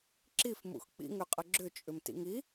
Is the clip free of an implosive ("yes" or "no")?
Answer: yes